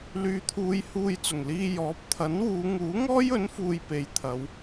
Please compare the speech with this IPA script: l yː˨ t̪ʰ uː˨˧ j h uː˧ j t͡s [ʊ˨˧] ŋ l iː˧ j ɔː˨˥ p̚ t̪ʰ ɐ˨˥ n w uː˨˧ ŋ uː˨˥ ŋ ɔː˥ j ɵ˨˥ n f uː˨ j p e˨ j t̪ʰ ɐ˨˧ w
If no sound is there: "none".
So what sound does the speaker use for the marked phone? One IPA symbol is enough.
ʊ˨˩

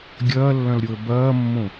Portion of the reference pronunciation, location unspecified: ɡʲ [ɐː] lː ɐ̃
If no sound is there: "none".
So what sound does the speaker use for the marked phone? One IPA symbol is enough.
ɐː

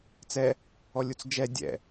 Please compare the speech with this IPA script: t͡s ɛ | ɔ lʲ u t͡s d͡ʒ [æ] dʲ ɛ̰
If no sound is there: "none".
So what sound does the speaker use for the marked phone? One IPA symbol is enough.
ɛ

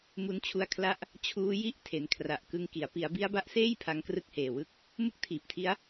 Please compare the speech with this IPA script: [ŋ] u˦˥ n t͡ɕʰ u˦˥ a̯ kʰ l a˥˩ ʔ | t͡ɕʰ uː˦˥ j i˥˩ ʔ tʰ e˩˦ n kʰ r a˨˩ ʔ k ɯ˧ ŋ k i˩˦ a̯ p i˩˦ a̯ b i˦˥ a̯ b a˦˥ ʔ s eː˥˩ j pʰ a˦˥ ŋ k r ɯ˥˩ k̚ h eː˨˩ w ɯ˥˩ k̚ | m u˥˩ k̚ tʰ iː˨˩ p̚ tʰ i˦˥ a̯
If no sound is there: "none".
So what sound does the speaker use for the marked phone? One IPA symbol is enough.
m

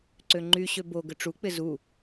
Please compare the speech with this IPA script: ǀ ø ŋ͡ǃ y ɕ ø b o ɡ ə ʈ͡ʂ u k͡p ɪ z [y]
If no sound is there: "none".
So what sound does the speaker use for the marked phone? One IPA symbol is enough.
u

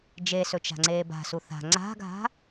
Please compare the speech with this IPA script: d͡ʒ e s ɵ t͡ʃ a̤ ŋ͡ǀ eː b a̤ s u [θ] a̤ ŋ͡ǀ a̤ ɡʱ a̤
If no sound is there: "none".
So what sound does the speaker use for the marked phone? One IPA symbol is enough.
θ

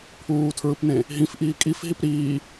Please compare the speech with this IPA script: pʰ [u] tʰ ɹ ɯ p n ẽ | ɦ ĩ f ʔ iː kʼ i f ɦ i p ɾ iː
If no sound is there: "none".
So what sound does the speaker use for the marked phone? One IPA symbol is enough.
uː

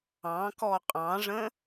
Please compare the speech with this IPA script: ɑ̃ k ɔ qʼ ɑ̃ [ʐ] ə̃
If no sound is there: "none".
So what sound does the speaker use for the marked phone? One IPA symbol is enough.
ʐ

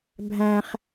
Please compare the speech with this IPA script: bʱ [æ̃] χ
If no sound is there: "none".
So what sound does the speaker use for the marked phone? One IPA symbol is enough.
æ̃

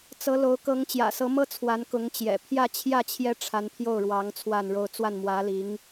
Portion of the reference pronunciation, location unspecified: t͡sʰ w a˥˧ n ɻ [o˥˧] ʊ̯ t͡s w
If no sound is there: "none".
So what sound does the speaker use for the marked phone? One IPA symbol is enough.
o˥˧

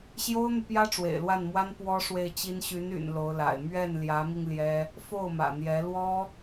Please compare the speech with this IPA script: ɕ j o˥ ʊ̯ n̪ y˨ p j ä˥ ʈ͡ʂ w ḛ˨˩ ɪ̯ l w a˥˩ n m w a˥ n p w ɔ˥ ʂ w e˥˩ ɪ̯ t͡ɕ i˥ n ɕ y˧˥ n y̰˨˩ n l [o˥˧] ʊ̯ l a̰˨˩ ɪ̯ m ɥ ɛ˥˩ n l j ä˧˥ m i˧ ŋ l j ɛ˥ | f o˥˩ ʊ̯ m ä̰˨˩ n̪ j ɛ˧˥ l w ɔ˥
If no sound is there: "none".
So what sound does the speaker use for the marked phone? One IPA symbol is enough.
o˧˥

